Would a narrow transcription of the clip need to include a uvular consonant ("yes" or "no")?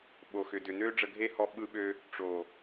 no